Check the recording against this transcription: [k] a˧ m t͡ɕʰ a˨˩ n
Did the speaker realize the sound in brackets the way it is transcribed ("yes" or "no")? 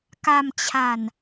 yes